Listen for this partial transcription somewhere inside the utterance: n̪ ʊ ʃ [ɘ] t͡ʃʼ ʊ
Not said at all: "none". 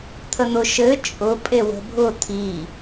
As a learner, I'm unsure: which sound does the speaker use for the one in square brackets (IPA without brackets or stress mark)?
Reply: ɘ